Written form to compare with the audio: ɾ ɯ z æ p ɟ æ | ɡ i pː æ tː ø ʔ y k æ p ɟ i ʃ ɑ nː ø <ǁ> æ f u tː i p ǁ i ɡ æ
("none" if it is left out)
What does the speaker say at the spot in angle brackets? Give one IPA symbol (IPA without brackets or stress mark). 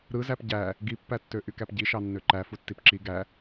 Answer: ǃ